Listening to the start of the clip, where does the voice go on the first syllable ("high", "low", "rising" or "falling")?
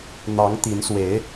rising